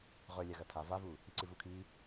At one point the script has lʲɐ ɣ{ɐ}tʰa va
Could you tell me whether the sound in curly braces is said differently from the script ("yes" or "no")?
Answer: no